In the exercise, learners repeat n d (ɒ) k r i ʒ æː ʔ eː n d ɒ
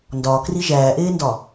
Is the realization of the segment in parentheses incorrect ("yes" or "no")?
yes